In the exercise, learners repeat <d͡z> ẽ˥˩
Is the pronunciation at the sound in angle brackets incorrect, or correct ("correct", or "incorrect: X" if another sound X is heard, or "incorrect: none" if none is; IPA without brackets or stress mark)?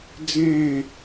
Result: correct